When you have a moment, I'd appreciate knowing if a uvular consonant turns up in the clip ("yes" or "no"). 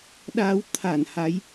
no